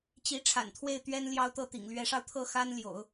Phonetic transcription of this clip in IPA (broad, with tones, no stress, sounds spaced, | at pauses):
t͡ɕ i˧˥ ʈ͡ʂʰ a̰˨˩ n t̪ʰ w e˥˩ ɪ̯ t̪ ɥ ɛ˥ n l j ɑ˥ ʊ̯ t̪ ɤ˥˩ t̪ ḭ˨˩ ŋ l ɥ ɛ˧˥ ʂ ɑ˧ ʊ̯ t̪ʰ ɤ˥˩ x a˥ n l j o̰˨˩˦ ʊ̯